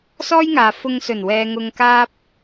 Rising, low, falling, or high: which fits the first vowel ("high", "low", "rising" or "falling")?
high